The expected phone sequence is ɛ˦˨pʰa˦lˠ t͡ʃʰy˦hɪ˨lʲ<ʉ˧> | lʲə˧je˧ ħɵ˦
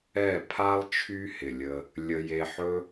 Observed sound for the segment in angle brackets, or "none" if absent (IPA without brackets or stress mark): ə˧